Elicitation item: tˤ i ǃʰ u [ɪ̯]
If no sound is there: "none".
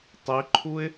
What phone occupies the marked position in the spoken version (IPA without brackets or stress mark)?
ɪ̯